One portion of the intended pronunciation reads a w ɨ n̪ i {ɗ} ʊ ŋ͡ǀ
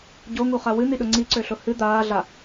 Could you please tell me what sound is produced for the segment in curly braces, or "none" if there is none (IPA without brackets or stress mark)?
ɗ